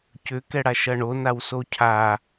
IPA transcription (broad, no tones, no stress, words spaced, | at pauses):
cʏ kɛɽaʃɐɳo nawsocʰa